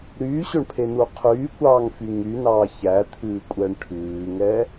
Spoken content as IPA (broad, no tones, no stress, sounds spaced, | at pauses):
ɾ yː ɕ ɵ ɳ pʰ e n u qʰ yː kʷ ɑː ŋ f y ŋ y n ɑː ç æ t̪ʰ ʉː kʷʼ ɛ ɳ ʈʰ ʉː ŋ ɛ